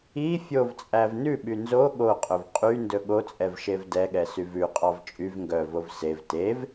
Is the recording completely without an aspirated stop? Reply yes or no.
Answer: yes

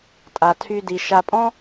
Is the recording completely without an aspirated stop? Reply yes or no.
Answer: no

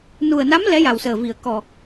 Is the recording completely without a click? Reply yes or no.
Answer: yes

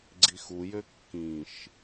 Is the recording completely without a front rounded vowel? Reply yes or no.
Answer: no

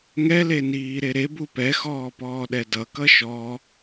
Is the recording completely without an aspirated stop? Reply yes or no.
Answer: yes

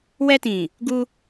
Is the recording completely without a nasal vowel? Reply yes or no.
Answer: no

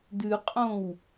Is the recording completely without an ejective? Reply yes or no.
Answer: no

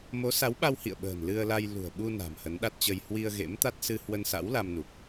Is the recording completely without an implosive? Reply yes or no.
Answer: no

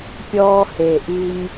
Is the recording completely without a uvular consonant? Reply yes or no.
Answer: yes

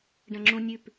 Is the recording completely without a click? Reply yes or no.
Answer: no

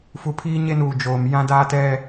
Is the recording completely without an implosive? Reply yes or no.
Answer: yes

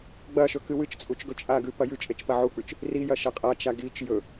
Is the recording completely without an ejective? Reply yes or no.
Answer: no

